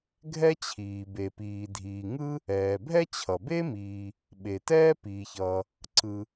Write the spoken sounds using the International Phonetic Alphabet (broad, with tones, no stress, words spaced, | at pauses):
ɡʱɛ˥t͡ɕʰiː˩ be˩piː˩dʱiː˩ ŋɯ˥ | ɛː˩bʱɛ˥ t͡ɕʰʌ˩ be˥miː˩ | ɓe˩tɛː˥ piː˩çʌː˩ | ǀɯ˩